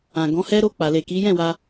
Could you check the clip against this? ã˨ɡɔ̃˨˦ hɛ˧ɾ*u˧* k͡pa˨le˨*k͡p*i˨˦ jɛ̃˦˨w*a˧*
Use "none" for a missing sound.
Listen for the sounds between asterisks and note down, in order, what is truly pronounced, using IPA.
o˧, k, a˧

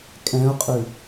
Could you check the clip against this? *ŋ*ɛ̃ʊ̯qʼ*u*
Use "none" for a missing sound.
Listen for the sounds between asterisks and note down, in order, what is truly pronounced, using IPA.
kʼ, ʉ

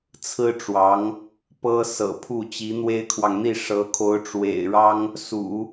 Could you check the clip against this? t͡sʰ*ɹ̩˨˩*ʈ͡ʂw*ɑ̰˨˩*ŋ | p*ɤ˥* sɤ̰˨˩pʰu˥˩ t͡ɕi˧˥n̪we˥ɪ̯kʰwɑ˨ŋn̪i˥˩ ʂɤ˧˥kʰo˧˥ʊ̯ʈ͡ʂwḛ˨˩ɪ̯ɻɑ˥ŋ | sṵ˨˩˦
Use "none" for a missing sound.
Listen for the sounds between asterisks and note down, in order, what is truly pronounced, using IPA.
ɹ̩˥, ɑ˧˥, ɤ˥

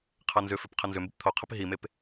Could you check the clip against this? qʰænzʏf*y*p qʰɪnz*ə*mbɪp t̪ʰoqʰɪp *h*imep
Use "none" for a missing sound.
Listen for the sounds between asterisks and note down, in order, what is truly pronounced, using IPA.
ʏ, ʏ, ɦ

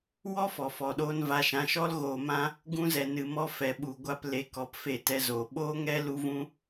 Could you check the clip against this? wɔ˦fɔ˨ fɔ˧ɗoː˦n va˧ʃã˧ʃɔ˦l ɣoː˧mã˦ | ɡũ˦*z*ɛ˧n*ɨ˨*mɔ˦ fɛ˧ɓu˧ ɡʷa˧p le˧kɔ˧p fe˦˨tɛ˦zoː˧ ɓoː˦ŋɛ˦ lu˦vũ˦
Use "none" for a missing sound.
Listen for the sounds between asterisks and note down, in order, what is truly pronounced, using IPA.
z, ɨ˧

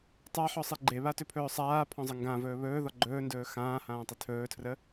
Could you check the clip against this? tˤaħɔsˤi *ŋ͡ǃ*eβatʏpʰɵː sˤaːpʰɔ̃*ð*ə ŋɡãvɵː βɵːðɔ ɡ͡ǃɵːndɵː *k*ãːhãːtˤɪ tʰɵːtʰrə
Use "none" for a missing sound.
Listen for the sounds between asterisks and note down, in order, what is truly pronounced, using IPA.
ɡ͡ǃ, zˤ, x

